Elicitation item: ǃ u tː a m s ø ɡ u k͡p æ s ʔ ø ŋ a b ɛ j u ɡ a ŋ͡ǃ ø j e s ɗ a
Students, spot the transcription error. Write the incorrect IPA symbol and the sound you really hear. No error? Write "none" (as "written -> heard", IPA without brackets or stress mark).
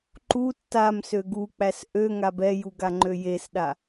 none